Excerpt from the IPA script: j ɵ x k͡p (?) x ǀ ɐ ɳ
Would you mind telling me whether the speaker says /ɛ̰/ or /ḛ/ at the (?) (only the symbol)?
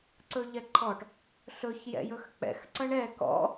ɛ̰